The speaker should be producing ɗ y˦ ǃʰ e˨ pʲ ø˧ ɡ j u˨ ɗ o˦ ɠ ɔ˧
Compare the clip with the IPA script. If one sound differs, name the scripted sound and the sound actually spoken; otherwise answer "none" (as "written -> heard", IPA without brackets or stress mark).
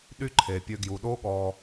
none